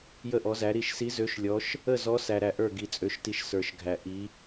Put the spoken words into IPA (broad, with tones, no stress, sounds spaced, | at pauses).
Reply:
j ə˥˨ ʔ ɔ˧˥ z æ˧˥ ɾ i˥˨ ʃ s i˧˥ z ø˧˥ ʃ lʲ ɔ˧˥ ʃ | ə˥˨ z ɔ˧˥ s æ˧ ɾ æ˧ ʔ ə˞˥˨ ɡ i˧ t͡sʼ ø˧˥ ʃ t i˧ ʃ s ə˞˧ ʃ ɡʱ æ˧ ʔ i˧˥